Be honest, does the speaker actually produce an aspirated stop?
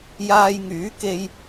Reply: no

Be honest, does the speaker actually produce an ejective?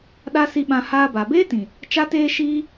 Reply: no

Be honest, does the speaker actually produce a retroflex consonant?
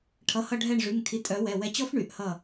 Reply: yes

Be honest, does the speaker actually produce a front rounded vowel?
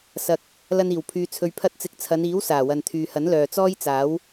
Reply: yes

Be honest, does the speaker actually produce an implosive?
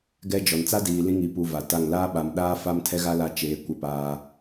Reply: yes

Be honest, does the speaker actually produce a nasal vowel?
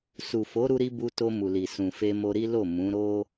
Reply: yes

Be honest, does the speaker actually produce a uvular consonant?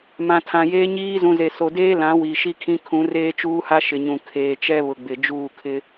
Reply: no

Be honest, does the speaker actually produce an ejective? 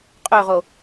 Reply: yes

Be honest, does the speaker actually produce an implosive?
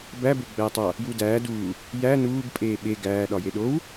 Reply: yes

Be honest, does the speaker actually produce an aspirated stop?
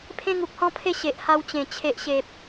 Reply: yes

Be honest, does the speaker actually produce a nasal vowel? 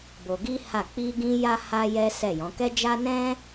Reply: yes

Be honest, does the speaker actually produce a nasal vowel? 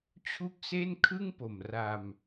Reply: no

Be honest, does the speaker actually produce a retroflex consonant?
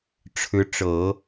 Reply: yes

